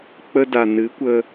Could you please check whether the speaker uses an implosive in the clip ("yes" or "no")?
no